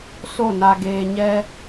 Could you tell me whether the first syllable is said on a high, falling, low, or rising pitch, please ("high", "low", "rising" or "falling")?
falling